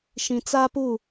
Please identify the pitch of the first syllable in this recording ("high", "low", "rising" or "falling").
low